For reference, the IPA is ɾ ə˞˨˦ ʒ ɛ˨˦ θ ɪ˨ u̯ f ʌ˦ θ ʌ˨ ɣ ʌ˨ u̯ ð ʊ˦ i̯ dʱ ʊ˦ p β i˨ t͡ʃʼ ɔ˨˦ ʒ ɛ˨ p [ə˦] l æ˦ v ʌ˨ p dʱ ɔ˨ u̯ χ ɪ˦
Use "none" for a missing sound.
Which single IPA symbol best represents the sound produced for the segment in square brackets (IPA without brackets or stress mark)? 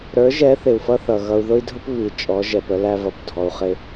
ə˦